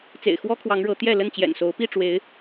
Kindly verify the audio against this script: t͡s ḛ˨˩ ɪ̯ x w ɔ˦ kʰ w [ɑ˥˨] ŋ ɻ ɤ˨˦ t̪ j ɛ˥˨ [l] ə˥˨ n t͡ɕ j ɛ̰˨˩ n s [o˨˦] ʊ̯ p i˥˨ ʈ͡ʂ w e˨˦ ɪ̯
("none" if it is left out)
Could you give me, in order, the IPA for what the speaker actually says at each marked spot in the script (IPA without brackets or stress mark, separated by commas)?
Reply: ɑ˨˦, l, o˨˦